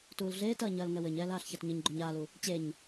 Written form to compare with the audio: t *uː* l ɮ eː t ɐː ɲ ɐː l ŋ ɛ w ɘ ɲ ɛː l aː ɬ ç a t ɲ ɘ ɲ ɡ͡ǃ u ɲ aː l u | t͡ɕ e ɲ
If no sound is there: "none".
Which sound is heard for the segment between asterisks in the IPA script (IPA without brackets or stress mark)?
uː